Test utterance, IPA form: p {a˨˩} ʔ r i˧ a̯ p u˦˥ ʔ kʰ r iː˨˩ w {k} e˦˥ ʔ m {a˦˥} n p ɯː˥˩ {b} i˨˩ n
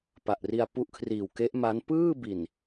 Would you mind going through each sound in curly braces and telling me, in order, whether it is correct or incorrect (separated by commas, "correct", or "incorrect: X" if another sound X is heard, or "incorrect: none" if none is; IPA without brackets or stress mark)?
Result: correct, correct, correct, correct